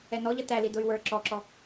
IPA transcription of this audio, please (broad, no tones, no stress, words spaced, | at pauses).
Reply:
ɛnɔʎʌ tæli dʊy̯wə˞ ǁɔǁɔ